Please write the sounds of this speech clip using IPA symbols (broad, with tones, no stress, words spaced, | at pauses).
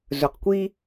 zɵ˨qkʷi˦